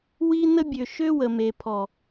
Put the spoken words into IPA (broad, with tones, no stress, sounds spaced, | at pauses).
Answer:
w i˦ n ə˦ bʲ ø˨ ʃ ø˦ w ə˨ m e˨ pʰ ɔ˨